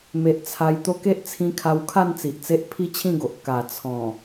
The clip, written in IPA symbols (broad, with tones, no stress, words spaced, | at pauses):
me˨ʔ t͡sʰa˧jt̪o˦ ke˦ʔt͡sʰĩ˧kʰa˧wkʰa˥˧n t͡si˨ʔt͡se˦ʔ pʰi˦t͡ɕʰĩ˥˧ɡo˨ʔ ka˨˩ t͡sʰɔ̃˨˩